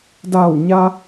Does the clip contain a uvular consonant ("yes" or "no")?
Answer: no